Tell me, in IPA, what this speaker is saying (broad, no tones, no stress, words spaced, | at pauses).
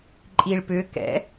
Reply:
ǃʼiɭpʏkɛ̰